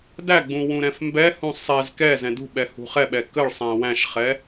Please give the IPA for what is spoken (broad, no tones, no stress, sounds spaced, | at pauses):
d æ ɡ͡b ũ w ũ ɾ ɛ̃ f m b ɛ h ũ sˤ ɛ z k ɛ z ɛ̃ d ṳ ɓ ɛ h ṳ χ ɛ ɓ ɛ k ə ɭ sˤ æ̃ w æ̃ ʃ χ ɛ